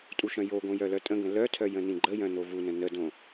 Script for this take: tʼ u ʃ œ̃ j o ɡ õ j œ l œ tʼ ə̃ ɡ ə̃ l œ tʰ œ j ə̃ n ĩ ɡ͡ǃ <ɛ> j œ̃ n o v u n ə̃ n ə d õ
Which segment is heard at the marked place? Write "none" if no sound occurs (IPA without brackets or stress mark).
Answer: ə